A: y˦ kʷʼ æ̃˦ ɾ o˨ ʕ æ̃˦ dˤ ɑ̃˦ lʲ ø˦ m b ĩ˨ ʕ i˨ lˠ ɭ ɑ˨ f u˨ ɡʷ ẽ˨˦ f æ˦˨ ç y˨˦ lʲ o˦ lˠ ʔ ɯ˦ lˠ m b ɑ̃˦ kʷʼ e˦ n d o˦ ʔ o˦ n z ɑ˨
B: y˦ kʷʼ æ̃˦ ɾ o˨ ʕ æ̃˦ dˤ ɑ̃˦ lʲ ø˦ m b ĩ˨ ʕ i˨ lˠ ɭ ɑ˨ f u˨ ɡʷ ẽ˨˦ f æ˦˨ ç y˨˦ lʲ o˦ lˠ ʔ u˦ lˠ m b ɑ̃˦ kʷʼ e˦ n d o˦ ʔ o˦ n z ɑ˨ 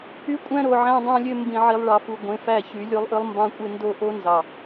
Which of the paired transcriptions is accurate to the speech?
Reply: A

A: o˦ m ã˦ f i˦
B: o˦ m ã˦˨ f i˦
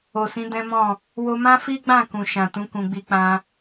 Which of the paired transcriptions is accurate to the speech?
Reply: A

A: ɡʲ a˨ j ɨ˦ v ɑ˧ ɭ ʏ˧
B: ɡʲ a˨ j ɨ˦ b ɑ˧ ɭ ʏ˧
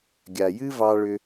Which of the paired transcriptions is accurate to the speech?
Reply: A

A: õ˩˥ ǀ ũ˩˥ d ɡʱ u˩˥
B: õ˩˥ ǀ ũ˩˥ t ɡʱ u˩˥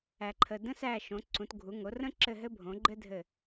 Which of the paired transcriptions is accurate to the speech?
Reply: B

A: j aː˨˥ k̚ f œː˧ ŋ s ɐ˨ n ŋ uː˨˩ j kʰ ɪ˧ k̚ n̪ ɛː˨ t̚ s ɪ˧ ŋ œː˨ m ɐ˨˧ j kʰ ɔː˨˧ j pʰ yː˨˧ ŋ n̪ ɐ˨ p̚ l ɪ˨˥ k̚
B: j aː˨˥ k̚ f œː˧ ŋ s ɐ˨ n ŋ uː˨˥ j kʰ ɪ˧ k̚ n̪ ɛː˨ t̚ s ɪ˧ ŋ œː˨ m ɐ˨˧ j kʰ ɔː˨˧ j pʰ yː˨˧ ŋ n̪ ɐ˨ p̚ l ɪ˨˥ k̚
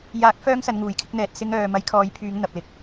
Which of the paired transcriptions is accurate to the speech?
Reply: A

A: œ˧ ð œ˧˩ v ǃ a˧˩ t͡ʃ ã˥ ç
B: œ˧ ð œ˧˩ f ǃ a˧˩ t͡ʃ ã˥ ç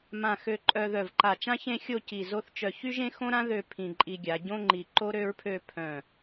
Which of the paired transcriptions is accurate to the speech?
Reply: A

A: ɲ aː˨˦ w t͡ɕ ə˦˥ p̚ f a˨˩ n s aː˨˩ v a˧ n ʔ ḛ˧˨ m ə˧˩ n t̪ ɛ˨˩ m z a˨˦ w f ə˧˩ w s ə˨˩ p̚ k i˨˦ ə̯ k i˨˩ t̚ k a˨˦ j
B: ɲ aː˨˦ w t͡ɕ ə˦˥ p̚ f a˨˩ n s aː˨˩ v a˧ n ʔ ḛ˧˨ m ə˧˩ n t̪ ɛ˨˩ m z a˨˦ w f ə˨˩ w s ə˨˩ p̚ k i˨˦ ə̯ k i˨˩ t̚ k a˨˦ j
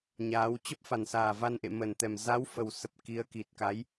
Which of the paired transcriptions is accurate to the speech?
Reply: B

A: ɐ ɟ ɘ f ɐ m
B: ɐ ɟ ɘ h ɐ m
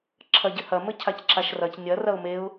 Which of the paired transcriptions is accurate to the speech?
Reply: B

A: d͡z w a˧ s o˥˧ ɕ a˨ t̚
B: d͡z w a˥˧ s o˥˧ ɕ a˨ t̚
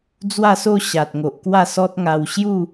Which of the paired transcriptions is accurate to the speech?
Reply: B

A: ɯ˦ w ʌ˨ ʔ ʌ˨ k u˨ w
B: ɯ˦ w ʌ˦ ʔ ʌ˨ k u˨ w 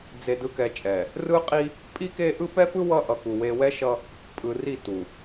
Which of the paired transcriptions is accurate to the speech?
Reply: B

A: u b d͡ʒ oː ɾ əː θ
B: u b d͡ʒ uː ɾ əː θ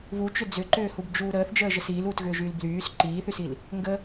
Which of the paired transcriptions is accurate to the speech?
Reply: B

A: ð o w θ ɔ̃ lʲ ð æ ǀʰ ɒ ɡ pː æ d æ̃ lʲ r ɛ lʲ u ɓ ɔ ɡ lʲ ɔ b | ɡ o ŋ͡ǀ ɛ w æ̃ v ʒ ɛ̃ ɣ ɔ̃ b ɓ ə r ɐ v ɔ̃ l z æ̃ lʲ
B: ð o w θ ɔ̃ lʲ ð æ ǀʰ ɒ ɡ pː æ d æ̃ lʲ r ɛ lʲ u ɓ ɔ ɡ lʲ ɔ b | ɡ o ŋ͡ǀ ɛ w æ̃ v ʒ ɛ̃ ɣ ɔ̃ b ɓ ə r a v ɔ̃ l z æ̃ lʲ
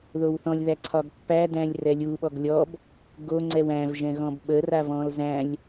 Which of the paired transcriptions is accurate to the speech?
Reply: B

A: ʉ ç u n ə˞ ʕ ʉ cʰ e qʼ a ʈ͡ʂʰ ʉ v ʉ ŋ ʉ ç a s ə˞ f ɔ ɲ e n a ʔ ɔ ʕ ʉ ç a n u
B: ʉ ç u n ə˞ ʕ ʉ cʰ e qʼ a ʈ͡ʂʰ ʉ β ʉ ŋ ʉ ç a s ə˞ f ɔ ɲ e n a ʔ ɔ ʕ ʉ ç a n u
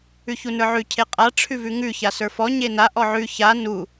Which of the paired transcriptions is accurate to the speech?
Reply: A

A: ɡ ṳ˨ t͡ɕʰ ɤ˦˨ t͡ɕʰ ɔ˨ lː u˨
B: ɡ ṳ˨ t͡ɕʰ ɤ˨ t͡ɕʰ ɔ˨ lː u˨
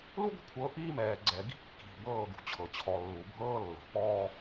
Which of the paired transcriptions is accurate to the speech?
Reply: B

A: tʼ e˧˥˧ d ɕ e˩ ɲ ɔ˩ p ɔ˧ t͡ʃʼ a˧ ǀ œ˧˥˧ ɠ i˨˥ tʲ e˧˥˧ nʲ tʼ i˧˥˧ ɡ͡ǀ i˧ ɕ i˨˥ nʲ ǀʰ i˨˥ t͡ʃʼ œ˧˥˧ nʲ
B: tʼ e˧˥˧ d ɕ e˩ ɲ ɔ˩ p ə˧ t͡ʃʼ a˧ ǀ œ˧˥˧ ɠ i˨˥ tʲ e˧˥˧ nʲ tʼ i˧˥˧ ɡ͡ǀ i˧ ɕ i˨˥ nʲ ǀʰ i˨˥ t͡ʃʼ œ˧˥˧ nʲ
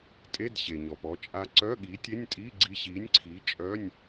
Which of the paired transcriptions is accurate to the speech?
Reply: A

